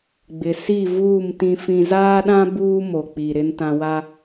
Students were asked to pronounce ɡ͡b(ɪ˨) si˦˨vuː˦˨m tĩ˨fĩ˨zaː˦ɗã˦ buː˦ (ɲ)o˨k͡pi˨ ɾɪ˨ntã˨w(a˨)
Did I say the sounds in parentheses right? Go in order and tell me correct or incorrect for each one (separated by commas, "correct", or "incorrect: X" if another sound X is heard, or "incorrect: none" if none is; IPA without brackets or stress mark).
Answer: correct, incorrect: m, incorrect: a˦